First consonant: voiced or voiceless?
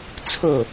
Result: voiceless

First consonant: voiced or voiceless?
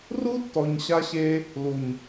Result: voiced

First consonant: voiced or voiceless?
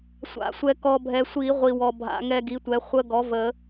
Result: voiceless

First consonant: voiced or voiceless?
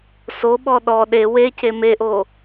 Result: voiceless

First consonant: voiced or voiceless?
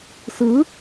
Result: voiceless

